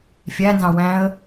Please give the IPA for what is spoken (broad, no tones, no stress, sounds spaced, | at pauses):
fʲ æ n z ɑ̃ w æ̃ ə̯